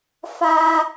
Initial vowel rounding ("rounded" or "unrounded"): unrounded